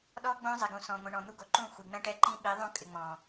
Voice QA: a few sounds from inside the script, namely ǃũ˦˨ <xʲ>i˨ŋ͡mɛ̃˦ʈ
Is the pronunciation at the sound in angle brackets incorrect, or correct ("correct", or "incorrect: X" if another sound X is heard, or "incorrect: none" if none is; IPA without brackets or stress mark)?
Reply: incorrect: xʷ